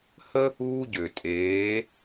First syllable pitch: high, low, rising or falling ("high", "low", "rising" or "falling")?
high